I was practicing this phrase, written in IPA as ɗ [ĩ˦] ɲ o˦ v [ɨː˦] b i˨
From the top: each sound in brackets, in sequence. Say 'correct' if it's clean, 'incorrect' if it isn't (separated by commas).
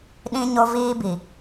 correct, incorrect